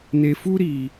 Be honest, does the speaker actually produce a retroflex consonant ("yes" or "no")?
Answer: no